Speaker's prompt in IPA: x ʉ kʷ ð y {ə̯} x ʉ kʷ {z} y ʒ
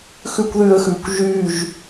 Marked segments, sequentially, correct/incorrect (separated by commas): correct, incorrect